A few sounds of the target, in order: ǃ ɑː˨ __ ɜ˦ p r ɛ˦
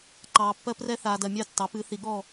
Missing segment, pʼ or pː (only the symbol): pː